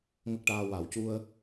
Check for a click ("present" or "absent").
absent